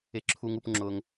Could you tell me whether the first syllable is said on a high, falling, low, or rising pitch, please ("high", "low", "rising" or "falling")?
low